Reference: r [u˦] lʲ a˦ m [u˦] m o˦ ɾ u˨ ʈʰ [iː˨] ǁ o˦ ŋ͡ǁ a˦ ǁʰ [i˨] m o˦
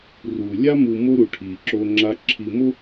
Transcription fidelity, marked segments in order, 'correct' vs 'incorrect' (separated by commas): incorrect, incorrect, correct, correct